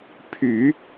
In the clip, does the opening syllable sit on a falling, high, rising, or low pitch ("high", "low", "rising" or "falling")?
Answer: low